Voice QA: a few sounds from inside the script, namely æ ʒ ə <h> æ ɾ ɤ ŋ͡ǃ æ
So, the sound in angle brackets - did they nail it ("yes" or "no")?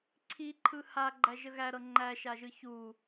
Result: no